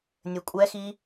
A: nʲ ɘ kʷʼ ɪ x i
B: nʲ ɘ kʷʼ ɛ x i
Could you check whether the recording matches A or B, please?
B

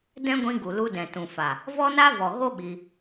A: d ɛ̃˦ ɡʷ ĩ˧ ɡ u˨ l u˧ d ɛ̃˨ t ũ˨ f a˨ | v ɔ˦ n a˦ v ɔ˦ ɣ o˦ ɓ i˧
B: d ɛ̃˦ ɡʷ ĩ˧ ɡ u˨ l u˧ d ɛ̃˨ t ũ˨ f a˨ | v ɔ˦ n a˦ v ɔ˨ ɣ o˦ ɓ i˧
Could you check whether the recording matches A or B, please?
B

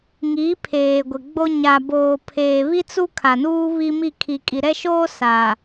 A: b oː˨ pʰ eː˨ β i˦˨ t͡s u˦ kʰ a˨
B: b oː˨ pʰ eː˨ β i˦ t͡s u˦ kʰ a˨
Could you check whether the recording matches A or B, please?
B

